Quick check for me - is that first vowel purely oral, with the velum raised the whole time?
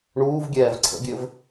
yes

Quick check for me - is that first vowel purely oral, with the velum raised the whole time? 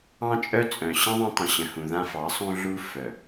no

